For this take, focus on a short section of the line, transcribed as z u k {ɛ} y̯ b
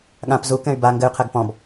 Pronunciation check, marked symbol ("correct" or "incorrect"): incorrect